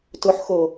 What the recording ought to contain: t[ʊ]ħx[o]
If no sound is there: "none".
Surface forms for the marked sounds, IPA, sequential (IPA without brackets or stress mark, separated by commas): ʊ, o